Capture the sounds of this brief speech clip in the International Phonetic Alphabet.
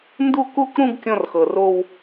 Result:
n d u˥˧ k u˥˧ k ɾ ũ˥˧ ɡ kʲ ɔ̃˥˧ r x ɤ˨˩ r o˥˧ w

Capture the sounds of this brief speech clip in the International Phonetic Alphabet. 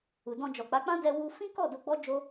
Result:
u˨ d ɔ̃˧ d͡ʒ ɔ˨ k͡p a˨˦ k͡p ã˦ d ɛ˧ w u˧ f ĩ˦ k ɔ˦˨ d o˧ ɡ͡b ɔ˦ d͡ʒ o˦

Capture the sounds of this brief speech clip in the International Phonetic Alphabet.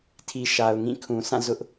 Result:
tʰ i˨ ʃ a˨ ʊ̯ ŋ ĩ˦˨ kʰ ũ˨ s ã˦˨ z ʊ˦ ʔ

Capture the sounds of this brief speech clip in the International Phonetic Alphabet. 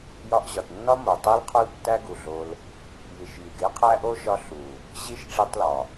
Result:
j ɒ˧ ʔ ʑ ɒ˨ t nː ɒ˦ m o˨ tˤ e˦ l qʰ o˦ l tː æ˦ ɡ u˨ ɮ o˧ l | j i˨ ʃ j i˨ ɡ e˦ qʰ æ˦ ʔ o˦ ʃ ɒ˧ ɬ u˨ | ʑ i˦ ʃ ʈ͡ʂ i˧ tˤ l ɒ˨

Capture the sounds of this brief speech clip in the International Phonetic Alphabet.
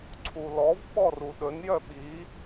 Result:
ǀʰ u l ɔ v ɓ ɔ r u ɗ ɵ n j œ ɓ i

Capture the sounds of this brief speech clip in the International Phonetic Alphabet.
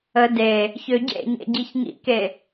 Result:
ə d e | ç ø ɟ ḛ ɲ ḛ ɟ i ç ŋ ḭ k e

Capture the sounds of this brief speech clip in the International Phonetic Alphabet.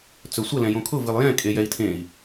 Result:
t͡s ɵ sʷ ə l ɛ̃ j õ kʰ ʊ v ɨ lˠ j ɛ̃ kʼ e j ɛ i̯ tʰ ẽ i̯

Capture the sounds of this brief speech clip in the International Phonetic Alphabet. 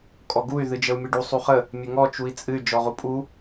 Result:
kʼ ɔ ɡ u y̯ ð ɨ d͡ʒ ə u̯ mʲ ɨ ɖ u sˤ u χ ə | mʲ ə ŋ ɔ t͡ʃ u i̯ t͡sʼ ɨ y̯ d͡ʒ ɔ ʁ u pʼ u

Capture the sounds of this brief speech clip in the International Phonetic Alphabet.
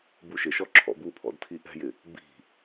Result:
b u ʃ ɪ ʃ ɔ ǁʰ ɔ̰ b u pʰ ɔ̰ d tʰ i ʔ ɛ̤ j ɪ | b i̤

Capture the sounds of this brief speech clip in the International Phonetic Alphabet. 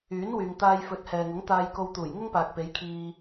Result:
yː˨˥ n w yː˨ ŋ t̪ aː˧ j f ɵ˨˥ t̚ h ɛː˨ ŋ ʊ˨˥ ŋ t̪ aː˧ j k o˧ w t̪ uː˨˩ j ŋ ʊ˥ ŋ p aː˨ k̚ p e˨˥ j kʰ iː˧

